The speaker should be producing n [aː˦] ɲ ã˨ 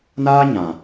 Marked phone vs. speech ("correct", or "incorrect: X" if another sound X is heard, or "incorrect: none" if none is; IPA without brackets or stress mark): correct